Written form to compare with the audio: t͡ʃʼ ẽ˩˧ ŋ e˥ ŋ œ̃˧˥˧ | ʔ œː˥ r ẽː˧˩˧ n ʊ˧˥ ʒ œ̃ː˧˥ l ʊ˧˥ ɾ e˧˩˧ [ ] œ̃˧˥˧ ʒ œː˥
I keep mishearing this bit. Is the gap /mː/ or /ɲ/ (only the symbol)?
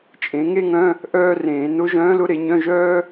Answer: ɲ